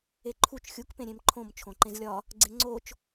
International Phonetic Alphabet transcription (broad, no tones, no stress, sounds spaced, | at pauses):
e ǃʰ u t͡ʃ xʲ u k p ẽ ɾʲ ẽ m ǃʰ õ m t͡ʃʰ õ ǃ ẽ z lʲ ɒ | ɡ͡ǀ e ŋ͡ǀ o t͡ʃ